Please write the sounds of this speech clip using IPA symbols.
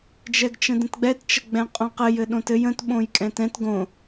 d͡ʒɛɡt͡ʃə̃də̃tɡ͡bɛt t͡ʃəɡ͡bɛ̃qʼõqɘj ɘɗõtɘj ə̃t ɓõjkʼɛ̃tɛ̃t ɡõ

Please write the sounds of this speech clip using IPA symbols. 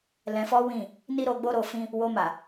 lɛ̃˧fɔ˦wĩ˦˨ | ni˦ɾo˧ɡ͡bo˦ ɾo˧fĩ˦ | wo˧ma˨

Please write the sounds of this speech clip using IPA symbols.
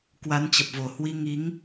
kwa˨˦nt͡ɕə˨˩p̚vo˨˩hwi˧ ŋi˨˦ŋ

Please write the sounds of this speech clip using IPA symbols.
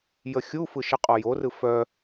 jəxʲufɯ ʃəqʼɔjorɯ fœ

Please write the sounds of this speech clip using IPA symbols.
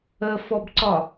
əfɔbǀɒ

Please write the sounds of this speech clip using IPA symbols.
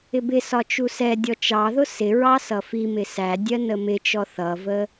ɪbɪsɒ t͡ʃusɛdʲɔ t͡ʃɑðʊ sɪɹɑ sʌfimɪ sæ dʲɜnəmɪt͡ʃɔ θʌvə

